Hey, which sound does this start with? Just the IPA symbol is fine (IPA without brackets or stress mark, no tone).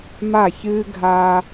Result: m